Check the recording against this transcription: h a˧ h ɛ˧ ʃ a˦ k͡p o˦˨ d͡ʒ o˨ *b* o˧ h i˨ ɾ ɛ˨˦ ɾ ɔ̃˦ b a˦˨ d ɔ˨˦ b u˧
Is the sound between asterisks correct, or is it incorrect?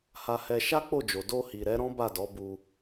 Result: incorrect: d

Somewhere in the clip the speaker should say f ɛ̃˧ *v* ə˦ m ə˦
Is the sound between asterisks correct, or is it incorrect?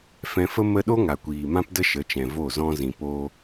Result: incorrect: f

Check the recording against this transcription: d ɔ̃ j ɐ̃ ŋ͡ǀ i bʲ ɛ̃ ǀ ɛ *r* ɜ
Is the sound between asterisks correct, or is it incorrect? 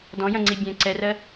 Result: correct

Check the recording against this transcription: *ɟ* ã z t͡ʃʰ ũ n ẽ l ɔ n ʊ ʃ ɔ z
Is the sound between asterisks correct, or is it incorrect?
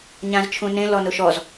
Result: incorrect: ɲ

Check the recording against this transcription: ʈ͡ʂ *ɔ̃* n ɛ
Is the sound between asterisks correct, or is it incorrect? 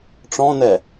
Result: correct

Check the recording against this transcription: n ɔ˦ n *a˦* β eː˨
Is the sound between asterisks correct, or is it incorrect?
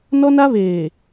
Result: correct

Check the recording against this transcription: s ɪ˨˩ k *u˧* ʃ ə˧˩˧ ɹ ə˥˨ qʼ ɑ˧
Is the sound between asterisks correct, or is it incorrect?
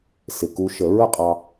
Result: correct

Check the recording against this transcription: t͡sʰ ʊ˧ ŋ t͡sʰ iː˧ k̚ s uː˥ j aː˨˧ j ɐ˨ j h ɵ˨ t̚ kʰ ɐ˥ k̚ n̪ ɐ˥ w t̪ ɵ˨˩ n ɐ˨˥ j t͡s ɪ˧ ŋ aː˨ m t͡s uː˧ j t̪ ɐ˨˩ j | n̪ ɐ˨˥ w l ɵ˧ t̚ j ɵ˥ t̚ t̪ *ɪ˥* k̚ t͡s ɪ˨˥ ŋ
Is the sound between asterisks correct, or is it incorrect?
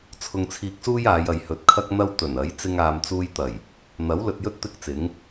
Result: correct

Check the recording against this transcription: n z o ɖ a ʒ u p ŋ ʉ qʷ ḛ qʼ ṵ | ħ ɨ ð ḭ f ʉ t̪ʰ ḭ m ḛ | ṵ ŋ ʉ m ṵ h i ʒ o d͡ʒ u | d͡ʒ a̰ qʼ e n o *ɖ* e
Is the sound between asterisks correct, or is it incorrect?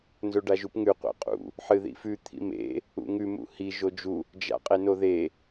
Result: incorrect: ð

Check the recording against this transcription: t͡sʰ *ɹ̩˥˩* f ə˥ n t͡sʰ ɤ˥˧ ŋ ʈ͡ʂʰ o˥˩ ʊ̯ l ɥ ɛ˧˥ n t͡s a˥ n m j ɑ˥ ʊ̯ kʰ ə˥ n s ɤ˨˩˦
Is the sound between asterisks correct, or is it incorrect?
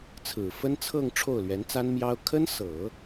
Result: incorrect: ɹ̩˨˩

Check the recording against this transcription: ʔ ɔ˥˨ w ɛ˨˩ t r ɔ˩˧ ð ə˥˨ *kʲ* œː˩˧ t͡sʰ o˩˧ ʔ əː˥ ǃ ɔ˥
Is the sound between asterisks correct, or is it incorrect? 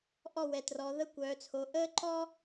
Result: incorrect: kʷ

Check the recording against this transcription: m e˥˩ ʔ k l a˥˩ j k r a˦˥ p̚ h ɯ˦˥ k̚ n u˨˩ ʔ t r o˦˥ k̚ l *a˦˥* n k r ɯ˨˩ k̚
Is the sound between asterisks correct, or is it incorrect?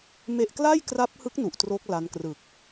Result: correct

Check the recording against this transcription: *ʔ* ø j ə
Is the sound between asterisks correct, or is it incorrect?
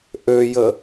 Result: correct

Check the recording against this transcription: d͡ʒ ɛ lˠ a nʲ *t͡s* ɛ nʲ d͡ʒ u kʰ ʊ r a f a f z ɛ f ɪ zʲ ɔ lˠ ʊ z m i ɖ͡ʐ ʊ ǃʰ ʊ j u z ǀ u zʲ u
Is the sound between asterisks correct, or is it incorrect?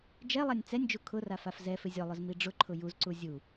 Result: correct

